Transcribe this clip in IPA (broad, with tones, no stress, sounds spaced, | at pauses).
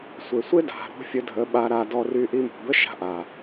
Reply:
sʷ e˨ sʷ e˦ d a̤˨ ɾ o̤˦ fʲ ə˧ dʱ ə˨˦ ɓ a˧ ɾ a˧ d ɔ˧ r y˧ ʔ i˧ m o̤˨ b ə˦ ʃ a̤˧ ʔ a˨